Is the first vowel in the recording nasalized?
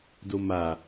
no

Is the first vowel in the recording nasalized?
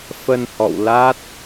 no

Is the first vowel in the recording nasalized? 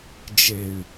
no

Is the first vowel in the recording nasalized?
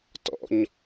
no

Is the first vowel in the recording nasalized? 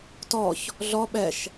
no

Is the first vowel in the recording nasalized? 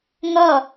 no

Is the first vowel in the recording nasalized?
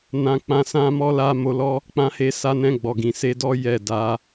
yes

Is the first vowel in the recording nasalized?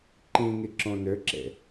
yes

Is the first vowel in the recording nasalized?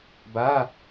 no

